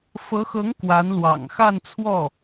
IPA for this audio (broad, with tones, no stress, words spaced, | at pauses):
fɤ˧˥xɤ˧˥ŋ kwa˧˥nlwɑ̰˨˩ŋ xa˥˧nt͡sʰwɔ˥˩